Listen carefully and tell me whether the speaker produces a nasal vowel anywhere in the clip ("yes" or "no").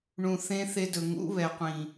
yes